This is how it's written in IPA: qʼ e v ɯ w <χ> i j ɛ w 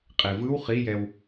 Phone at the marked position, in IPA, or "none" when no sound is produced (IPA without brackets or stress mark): χ